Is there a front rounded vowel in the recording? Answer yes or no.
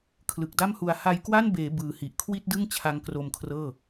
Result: no